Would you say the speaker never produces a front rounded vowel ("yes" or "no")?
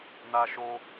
yes